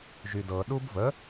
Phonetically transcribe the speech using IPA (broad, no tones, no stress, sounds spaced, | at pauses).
ʒ y d ɤ ɗ u b v ə